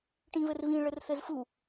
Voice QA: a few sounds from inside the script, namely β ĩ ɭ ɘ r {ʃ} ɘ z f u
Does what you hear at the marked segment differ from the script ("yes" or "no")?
yes